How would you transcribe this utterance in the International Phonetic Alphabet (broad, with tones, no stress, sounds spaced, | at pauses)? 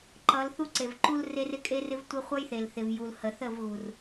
ǃ ʌ˨˦ l θ u˦ ǀ e˨ v ǃ u˦ l r e˦ r ɪ˦ kʼ e˦ r ɪ˦ v tʷ ɪ˦ χʷ ʌ˦ j θ e˨ l θ ɪ˨ v j u˨ l h ə˨ θ ə˦˨ v ɣ u˨ r